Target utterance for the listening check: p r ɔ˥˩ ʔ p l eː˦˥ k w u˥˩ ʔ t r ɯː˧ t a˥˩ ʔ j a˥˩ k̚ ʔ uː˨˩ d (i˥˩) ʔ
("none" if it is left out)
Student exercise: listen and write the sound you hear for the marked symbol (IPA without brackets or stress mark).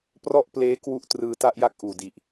i˨˩